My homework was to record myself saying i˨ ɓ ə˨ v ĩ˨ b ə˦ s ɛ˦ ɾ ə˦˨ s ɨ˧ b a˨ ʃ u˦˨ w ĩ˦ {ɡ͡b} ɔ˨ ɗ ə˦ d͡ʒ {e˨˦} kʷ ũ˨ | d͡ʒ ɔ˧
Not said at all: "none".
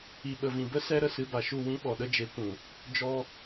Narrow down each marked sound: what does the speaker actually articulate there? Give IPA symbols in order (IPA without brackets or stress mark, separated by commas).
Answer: ɓ, e˨˦